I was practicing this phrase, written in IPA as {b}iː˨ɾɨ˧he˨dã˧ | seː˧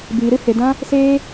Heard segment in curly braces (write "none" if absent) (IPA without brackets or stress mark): b